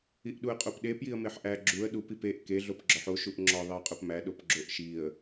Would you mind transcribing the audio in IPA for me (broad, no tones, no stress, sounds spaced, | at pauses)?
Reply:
i ʔ ɗ u ə̯ qʼ o p ɗ e p j i ə̯ m e ħ ʔ æ ɡ͡ǁ u ə̯ ɗ u p i p e ʔ k e ɮ o p ɡ͡ǁ ɒ ħ o ʃ u ʔ ŋ͡ǁ ɒ ðˤ i ə̯ qʼ o p m æ ɗ o p ɡ͡ǁ o ʔ ʃ i ə̯